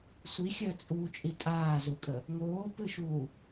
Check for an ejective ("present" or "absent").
present